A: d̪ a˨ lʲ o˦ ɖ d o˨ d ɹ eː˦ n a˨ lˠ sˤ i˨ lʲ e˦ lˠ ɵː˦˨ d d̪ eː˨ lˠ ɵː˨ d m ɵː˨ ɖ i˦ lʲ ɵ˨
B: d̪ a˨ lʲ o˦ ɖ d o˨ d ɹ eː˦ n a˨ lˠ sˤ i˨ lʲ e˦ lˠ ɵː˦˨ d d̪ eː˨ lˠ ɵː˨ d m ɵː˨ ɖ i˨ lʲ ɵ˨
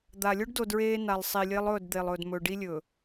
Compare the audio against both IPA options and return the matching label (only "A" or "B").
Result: A